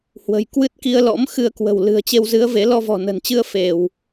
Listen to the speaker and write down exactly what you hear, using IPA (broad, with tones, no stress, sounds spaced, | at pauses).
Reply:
h w ə̤˨˩ j k w ɨ˦˥ t̚ k i˧ ə̯ l ɔ̰˧˥ m x ɨ˧ ə̯ k w ə̤˨˩ w l ɨ̤˨˩ ə̯ t͡ɕ e˧ w z ɨ˨˦ ə̯ v e˨˦ l ɔ˧ v ɔ̤˨˩ n ə̤˨˩ n t͡ɕ ɨ˧ ə̯ f e˧˩˨ w